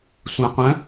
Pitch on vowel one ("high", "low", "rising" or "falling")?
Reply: low